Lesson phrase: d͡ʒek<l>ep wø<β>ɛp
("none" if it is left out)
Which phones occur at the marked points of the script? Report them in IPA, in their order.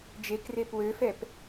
r, f

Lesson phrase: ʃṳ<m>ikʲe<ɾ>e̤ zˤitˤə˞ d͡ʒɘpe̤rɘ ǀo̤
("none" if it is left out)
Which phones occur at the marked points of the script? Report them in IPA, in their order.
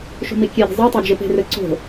m, ɾ

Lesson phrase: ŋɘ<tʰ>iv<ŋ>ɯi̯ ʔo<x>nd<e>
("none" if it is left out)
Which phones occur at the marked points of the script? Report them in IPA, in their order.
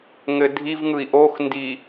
dʱ, ŋ, x, i

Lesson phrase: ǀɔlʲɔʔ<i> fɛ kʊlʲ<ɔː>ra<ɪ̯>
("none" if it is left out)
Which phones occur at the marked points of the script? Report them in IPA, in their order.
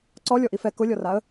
i, ɔ, ə̯

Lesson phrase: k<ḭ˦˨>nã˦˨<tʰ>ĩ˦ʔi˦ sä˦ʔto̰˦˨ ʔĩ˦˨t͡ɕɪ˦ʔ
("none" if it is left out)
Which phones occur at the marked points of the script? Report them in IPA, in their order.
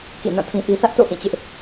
ḭ˦˨, tʰ

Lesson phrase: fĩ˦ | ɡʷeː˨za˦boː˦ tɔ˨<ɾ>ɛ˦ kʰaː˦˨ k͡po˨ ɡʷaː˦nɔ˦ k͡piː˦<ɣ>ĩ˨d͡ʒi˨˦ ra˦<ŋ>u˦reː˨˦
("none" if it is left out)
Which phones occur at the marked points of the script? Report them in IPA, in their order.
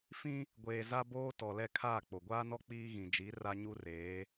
l, ɣ, ɲ

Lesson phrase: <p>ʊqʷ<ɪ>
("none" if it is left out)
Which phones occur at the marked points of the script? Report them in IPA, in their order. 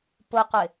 p, ɪ

